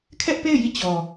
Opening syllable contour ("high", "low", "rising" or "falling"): high